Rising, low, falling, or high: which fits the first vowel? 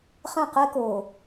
falling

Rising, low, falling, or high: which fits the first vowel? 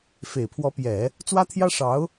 low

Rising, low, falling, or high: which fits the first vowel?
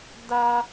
high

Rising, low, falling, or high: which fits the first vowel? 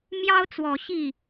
high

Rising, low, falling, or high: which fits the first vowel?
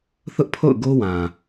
high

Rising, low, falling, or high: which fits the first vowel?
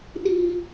high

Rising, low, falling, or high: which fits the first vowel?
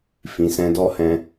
low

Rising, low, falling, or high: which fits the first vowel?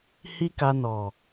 high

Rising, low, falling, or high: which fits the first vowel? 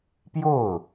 falling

